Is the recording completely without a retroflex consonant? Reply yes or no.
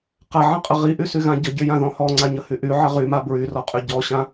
yes